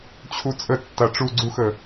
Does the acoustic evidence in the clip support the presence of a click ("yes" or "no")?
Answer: yes